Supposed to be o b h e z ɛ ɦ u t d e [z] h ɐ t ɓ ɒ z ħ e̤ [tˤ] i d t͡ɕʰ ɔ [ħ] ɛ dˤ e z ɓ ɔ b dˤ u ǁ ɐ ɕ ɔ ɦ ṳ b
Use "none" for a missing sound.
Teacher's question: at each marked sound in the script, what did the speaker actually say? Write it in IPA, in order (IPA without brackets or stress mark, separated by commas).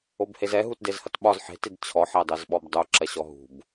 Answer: z, t, ħ